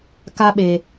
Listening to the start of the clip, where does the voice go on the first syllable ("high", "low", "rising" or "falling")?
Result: high